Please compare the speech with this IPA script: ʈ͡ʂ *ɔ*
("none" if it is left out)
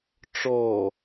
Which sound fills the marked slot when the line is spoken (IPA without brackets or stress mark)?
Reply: ɔ